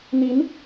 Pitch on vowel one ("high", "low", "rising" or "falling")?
rising